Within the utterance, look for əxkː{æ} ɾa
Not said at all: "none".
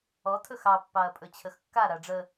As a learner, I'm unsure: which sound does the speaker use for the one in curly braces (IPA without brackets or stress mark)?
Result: a